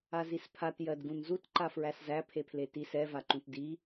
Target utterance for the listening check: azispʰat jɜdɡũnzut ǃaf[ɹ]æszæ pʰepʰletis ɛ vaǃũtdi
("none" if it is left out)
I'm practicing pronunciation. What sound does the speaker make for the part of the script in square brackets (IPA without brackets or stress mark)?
ɹ